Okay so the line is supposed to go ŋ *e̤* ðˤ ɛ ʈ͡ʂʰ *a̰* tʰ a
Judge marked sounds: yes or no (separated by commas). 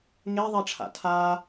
no, yes